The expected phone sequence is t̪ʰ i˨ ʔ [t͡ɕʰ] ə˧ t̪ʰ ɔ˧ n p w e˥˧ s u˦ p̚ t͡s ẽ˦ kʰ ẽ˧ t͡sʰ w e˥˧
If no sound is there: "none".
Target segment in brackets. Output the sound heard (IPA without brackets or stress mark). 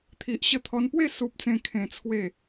ɕ